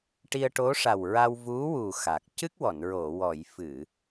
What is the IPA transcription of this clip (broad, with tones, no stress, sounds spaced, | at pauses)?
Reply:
ʈ i˧ ə̯ ʈ o˧˥ ʂ a˨˩ w ɹ a˧ w v u˧˥ w u˨˩ x a˨˩ k̚ c ɨ˦˥ k̚ w ɔ˨˩˨ n ɹ o˨˩˨ w ɔ˨˩˨ j f ɨ˨˩˨